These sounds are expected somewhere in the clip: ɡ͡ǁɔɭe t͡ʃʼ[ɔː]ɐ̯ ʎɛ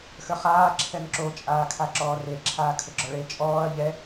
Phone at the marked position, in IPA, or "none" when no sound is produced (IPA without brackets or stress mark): ɔː